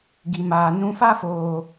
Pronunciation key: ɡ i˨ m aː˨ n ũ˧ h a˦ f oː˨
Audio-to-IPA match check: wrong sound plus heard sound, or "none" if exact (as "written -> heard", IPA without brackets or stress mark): h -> f